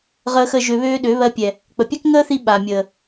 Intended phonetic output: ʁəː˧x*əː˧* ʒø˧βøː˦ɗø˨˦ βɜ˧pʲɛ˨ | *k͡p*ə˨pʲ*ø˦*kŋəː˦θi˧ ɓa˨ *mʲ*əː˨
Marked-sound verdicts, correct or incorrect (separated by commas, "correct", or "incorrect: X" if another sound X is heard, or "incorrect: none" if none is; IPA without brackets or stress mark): incorrect: ə˧, correct, incorrect: ɛ˦, correct